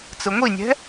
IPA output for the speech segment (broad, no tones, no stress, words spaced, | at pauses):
t͡sɯŋʷinʲɛ̤